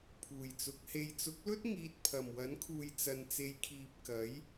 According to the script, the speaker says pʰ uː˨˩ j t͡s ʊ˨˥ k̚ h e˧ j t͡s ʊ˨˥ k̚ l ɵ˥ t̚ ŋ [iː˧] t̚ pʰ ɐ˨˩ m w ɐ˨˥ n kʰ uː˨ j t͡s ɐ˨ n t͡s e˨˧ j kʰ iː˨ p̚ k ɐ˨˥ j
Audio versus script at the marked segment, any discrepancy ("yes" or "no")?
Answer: no